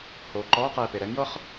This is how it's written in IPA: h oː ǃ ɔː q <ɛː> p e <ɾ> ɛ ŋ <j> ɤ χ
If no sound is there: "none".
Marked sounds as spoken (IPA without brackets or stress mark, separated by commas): ɛː, ɾ, j